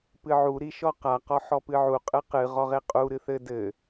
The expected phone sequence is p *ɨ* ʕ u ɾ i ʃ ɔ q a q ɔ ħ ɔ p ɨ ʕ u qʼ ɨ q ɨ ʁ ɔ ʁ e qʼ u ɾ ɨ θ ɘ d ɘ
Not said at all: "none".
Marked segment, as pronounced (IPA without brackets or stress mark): ɨ